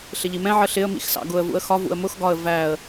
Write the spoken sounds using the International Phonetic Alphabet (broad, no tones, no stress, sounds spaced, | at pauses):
ɬ ɪ ʎ i m ɛ̃ ʕ ə ɬ ɪ ə̯ m ḭ x s ɑ̰ ɡ ʊ ə̯ v ṵ ə̯ x ɒ v ṵ ə̯ m ʊ x ɡ ɒ ə̯ v æ ə̯